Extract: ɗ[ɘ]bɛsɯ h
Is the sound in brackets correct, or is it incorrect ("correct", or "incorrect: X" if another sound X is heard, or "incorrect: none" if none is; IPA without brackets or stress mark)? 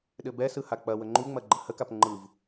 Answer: correct